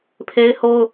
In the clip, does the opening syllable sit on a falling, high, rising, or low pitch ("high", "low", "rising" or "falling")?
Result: high